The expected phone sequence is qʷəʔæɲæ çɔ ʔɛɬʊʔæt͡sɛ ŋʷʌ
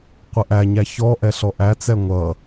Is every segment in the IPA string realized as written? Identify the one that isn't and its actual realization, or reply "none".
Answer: ʊ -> ɔ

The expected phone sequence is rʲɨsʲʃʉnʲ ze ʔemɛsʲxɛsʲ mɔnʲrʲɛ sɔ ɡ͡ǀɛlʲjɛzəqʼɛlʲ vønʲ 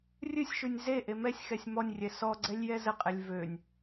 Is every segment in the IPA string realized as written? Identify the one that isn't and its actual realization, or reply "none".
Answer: none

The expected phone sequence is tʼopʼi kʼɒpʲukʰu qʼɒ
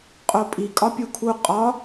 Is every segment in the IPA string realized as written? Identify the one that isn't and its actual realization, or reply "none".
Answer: tʼ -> qʼ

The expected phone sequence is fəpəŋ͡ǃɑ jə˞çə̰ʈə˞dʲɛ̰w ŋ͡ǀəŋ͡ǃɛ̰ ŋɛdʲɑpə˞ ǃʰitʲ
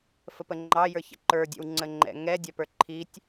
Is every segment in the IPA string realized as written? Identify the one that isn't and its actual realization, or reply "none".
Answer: ʈ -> ǃ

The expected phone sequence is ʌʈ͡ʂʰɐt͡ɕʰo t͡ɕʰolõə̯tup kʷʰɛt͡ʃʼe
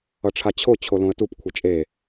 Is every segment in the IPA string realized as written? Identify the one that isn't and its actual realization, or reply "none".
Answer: ɐ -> a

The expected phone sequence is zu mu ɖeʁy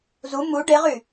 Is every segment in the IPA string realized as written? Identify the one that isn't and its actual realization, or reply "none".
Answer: none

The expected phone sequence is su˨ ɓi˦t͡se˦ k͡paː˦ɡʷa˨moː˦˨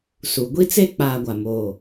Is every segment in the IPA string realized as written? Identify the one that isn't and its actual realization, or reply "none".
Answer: ɓ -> ɡʷ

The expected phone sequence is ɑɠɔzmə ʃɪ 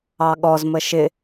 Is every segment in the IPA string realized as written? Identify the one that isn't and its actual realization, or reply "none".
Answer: none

